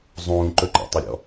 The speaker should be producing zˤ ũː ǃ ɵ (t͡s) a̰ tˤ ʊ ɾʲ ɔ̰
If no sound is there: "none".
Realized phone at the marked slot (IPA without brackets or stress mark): ǃ